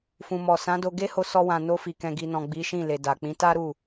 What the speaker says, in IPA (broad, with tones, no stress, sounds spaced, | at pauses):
f ũ˨ m ɔ˨ s ã˨˦ d o˧ ɡ e˦ h o˧ s ɔ˧ w ã˨ n o˧ f i˨ k ɛ̃˨ ɡ i˨ n ɔ̃˨ ɡ͡b i˨˦ ʃ ĩ˦˨ l e˨ d a˨ k͡p ĩ˨˦ t a˦ ɾ u˦˨